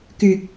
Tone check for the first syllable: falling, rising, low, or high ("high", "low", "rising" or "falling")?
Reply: low